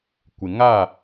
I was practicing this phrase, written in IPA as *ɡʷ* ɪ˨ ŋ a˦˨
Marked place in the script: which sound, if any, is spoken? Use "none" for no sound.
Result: kʷ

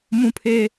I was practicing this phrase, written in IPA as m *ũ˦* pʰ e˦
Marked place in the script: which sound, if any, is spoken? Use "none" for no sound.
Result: ũ˦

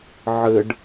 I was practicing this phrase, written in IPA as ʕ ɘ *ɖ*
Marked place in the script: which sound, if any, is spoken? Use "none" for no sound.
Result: ɖ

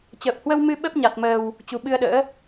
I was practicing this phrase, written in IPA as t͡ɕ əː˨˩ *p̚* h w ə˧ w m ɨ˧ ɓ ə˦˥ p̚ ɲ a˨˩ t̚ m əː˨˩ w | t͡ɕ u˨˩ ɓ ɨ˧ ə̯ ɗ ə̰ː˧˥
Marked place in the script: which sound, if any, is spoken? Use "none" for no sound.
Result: p̚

